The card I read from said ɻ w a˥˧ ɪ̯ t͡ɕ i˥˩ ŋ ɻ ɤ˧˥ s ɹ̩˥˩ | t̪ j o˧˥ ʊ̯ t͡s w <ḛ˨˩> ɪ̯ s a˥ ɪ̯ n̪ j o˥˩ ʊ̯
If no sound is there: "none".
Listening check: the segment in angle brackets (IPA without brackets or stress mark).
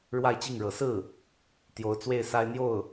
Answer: e˥˩